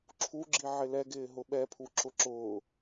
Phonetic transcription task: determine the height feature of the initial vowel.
high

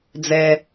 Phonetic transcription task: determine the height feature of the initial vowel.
mid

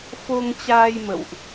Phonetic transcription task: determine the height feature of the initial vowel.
mid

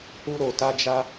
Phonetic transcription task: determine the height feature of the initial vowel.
high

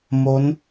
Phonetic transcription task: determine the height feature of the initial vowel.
mid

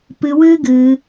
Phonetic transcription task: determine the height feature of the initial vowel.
high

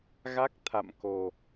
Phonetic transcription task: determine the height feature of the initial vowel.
low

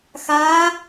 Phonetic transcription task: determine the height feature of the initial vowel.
low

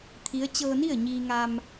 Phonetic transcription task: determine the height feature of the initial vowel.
high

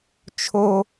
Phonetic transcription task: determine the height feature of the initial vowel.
mid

